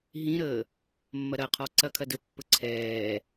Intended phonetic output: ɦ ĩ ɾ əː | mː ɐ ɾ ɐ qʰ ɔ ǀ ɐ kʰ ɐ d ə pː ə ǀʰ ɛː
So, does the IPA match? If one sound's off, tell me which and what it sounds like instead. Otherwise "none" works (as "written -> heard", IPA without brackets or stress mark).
none